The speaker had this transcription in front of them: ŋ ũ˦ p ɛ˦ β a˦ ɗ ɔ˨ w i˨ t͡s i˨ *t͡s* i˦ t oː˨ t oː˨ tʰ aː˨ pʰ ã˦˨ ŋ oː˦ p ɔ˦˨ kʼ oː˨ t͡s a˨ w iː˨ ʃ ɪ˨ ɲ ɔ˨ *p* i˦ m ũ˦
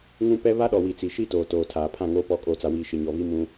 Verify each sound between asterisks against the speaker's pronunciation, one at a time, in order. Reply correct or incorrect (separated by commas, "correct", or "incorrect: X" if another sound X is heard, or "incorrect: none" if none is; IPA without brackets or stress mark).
incorrect: ʃ, incorrect: β